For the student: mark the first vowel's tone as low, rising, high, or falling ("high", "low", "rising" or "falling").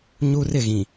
high